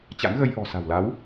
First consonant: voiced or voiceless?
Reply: voiceless